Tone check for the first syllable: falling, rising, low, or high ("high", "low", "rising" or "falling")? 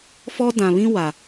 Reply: high